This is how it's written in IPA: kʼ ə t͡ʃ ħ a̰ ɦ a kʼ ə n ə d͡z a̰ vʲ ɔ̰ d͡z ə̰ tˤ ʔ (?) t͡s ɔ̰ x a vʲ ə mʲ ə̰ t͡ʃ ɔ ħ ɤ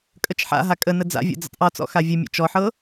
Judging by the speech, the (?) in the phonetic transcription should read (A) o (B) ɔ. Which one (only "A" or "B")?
B